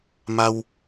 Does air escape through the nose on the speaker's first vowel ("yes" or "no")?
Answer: no